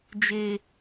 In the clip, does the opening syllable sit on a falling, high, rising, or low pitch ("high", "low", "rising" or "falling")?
high